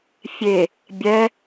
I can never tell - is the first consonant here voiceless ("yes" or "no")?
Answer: yes